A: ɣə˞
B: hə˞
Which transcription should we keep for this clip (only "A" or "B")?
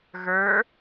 A